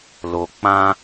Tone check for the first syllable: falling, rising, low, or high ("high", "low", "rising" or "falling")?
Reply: low